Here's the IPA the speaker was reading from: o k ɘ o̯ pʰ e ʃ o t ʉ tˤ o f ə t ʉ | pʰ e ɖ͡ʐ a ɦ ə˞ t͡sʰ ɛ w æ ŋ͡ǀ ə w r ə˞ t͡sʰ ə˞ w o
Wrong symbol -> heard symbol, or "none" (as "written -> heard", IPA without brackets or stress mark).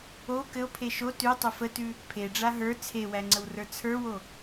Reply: ɛ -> e